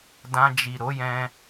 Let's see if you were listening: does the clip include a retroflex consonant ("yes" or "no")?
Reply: no